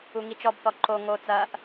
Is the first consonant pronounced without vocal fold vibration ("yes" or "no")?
no